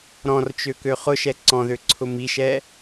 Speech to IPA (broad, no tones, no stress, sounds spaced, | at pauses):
ɾ ɔ̃ r t͡ʃ ø k ø χ ʊ ʃ ɛ ǀ ɔ̃ ð ø ǀʰ ʊ m i ʃ ɛ